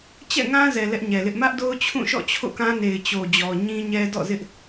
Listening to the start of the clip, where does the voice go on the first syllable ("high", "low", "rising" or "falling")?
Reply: falling